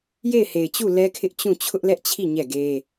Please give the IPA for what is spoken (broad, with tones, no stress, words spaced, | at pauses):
je˦˨ɪ̯he˨ɪ̯t͡ɕu˦˨ lɛ˦kʰɪ˦ʔ t͡ɕũ˦˨ t͡ɕʰʊ˦ʔlɛ˦ʔt͡ɕʰi˦˨ ɲɛ˦˨ɡe˦